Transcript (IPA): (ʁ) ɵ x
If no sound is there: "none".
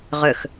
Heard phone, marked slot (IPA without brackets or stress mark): ʁ